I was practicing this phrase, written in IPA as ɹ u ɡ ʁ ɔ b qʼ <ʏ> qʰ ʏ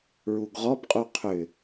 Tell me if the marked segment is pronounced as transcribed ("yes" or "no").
no